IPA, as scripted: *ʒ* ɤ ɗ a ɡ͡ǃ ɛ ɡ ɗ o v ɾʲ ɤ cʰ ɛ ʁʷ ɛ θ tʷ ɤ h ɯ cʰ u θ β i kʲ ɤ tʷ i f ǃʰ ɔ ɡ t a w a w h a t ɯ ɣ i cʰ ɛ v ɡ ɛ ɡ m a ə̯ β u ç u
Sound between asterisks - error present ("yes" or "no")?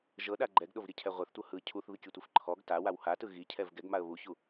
no